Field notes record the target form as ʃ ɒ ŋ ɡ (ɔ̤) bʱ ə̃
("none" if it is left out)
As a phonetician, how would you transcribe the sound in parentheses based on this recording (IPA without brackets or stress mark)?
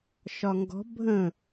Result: ɔ̤